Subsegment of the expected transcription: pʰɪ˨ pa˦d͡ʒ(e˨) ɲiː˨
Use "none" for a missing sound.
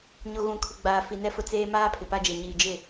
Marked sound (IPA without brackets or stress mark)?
e˨